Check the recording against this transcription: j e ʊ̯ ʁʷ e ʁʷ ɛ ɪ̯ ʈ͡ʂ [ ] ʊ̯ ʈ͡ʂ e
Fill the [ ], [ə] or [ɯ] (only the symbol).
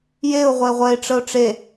ə